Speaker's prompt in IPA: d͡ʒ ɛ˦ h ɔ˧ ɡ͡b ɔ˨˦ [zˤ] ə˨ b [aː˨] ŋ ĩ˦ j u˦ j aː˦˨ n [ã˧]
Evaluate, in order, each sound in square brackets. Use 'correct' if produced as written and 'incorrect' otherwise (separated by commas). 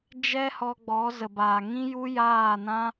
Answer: incorrect, correct, incorrect